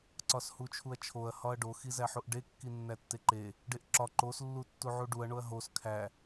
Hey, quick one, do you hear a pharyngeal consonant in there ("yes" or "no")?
yes